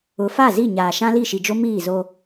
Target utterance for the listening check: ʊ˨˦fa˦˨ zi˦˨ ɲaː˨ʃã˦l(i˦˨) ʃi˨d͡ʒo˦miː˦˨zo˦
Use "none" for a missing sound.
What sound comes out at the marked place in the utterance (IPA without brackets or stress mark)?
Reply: i˦˨